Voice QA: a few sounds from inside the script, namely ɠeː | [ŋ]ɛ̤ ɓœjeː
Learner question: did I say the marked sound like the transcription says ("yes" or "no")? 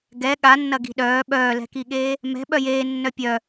no